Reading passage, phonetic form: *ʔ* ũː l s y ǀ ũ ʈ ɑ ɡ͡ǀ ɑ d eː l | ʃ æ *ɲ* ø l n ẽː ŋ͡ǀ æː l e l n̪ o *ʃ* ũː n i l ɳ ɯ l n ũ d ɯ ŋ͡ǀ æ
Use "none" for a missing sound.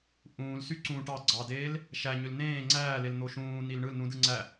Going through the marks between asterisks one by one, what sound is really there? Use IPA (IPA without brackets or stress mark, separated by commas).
ʔ, ɲ, ʃ